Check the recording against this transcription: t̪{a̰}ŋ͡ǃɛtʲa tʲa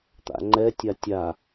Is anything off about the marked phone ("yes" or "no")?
no